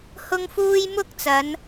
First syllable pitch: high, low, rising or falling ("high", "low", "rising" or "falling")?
high